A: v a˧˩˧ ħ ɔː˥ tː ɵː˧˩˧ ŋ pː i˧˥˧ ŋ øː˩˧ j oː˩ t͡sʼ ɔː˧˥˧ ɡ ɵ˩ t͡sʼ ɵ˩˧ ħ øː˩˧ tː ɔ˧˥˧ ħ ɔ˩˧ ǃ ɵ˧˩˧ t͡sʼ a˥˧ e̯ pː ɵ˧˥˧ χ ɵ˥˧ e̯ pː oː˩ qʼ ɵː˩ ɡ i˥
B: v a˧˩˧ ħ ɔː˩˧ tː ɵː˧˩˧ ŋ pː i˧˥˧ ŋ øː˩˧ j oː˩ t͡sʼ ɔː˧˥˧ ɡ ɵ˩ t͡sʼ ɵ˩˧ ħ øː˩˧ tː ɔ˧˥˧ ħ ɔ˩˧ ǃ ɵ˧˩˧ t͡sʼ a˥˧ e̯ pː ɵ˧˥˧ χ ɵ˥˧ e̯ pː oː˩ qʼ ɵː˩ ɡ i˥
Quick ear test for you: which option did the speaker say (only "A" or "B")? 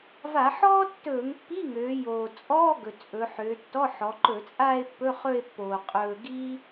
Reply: A